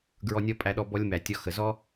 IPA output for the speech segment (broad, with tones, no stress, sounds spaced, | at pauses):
ɡ ɹ ɔ˦ nʲ ɔ˥ pʼ æ˦ ɗ ɔ˦ b ɔ˦ lʲ m æ˨ tʲ ɔ˦ x ə˨ z ɔ˥